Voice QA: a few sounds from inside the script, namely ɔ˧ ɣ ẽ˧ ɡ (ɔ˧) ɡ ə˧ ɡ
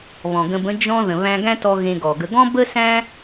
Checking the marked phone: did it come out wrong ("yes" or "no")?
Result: yes